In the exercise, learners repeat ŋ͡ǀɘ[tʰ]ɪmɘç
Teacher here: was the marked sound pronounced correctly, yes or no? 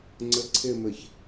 no